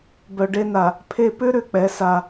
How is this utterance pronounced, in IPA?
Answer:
b œ˨ ɖ e˦ n a˨ | pʰ e˦ p ʏ˦ ɾ ʏ˨ k͡p ɛ˨˦ s a˦˨

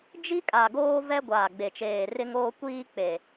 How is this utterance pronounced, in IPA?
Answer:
d͡ʒ i˦ kʼ a˨ ɡ oː˦ v ɛ˦ ɡʷ aː˨ ɡ͡b e˨ t͡ʃ eː˨ r ɪ˦ ŋ oː˦ kʷ iː˦ k͡p e˨

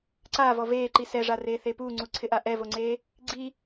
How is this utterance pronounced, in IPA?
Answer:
ǀ aː v ɔ v eː ǃ i s ɛ ʐ a r eː θ e p uː ŋ͡ǀ u ǀʰ ɪ ʔ a ʔ ɛ v o ŋ͡ǀ eː | ɡ͡ǀ i

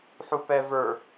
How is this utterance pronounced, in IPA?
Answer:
ħ u p ɛ v ə˞

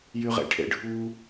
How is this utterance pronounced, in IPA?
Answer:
j y ʁ ḛ ʈʰ ḛ ɖʱ u

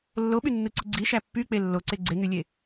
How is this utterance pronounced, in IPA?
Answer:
lː o ɓ y nː ɯ ǀ i ɡ͡ǀ i ʃ æ pː y k͡p e lː o ǀ e ɡ͡ǀ e ŋ y lʲ e

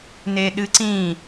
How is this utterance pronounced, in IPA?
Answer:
n e ɗ ɨ ǀ ĩ

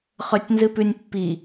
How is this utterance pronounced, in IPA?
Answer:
χ ɵ tʲ n z ɨ p ʉ nʲ pː i

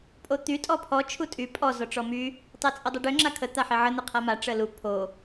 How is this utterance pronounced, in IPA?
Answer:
pʼ o t̪ y tʼ ɔ pʰ ɔ t͡ʃʰ u tʼ y pʼ ɔ z ɔ ʈ͡ʂ ɔ m y | tˤ e t͡sʼ ə dˤ ə ɖ ø ŋ͡ǁ a kʰ ə t̪ a ħ e ʕ ə n̪ ə qʰ a m a ʈ͡ʂ ə l u pʰ o

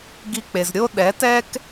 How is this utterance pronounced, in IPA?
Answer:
ɡ i˧ k͡p e˩ z ɾʲ o˥ ɗ ɛ˩˥ t ɛ˥ k

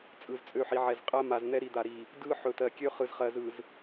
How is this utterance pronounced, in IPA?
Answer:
t͡sʼ ɯ˨ z t͡sʼ ø˦˨ ħ i˨ ʕ ɛ˨ z qʼ ɜ˦ m a˨ z n̪ ɛ˦ ɾ i˨ d̪ a˨ ɾ i˨ | d ɯ˦ ħ ɵ˨ t ɜ˨ kʲ ø˦ χ ɯ˨ z χ ɜ˨ z ɯ˨ z

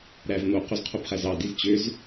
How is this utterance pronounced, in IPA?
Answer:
ɾ æ v n̪ o q o z qʰ o b χ æ z ɑ d i z t͡ɕ ø z

